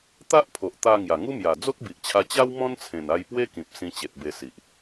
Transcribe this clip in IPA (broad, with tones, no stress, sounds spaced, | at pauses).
t̪ a˦ ʔ pʰ o˨ ʔ t̪ a˧ ŋ j a˨˩ ŋ u˦ m j a˨˩ d͡z o˦ k̚ b i˨ ʔ t͡ɕʰ a˧ t͡ɕ a˦ w m ɔ̃˦ n t͡sʰ ẽ˨˩ n a˧ j p w e˦ k ĩ˨ p̚ s ĩ˧ t͡ɕ e˨ t̚ b e˧ s i˨ ʔ